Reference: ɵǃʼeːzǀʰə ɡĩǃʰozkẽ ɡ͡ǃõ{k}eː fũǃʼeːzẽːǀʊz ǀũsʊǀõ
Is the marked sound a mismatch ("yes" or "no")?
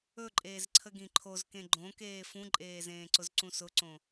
no